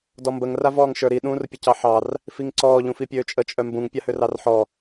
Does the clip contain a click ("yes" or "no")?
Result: yes